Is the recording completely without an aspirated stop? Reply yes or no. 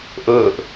yes